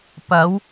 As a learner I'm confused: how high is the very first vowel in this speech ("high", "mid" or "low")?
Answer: low